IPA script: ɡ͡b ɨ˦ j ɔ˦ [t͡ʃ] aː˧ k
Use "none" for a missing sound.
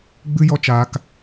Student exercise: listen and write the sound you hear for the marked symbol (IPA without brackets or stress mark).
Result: t͡ʃ